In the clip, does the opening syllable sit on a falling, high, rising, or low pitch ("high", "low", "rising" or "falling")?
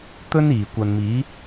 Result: high